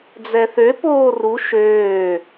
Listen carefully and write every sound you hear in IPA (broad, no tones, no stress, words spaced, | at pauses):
d͡zɛθøpoː ru ʃøː